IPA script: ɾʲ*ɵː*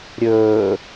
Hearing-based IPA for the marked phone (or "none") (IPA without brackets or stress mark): ɵː